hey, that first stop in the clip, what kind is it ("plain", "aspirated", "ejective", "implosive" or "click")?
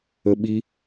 implosive